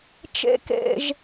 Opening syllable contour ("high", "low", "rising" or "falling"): low